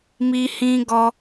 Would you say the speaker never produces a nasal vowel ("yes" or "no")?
no